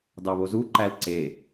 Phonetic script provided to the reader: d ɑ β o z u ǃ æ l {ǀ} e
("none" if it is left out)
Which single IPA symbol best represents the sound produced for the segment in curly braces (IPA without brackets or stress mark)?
ǀ